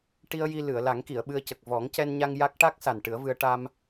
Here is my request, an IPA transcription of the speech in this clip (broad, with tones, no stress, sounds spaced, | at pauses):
ʈ i˧ ə̯ j i˧ l ɨ˨˩˨ ə̯ l a˨˩˦ ŋ k i˨˩˨ ə̯ ɓ ɨ˧ ə̯ c ə˨˩ k̚ v ɔ˨˩˦ ŋ c ɛ˧ n ɲ a˧ ŋ j a˦˥ k̚ ʈ a˦˥ k̚ s a˨˩ n ʈ ɨ˨˩˦ ə̯ v ɨ˧ ə̯ ʈ a˧ m